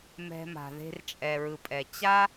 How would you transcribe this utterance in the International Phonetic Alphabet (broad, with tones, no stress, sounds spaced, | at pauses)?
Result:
m ɛ̤˧ m a̤˨ ð e̤˧ r t͡ʃʼ ɛ˨ ɹ ɯ˨ pʼ ɛ˨ t͡ɕ a˦